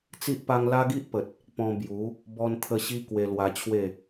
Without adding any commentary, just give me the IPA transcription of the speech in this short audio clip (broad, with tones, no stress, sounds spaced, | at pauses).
t͡s i˦ ʔ p a˦ ŋ l a˦ ɡ i˦ ʔ p ə˨ t̚ | p ɔ̃˧ b j u˨˦ | b ɔ˦ n t̪ʰ ə˦ ɕ i˦ k w e˧ l w a˧ t͡ɕʰ w e˥˧